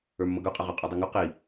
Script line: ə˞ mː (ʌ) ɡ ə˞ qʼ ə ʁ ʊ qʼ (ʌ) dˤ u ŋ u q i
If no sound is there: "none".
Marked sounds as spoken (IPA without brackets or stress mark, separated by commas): ʌ, ɔ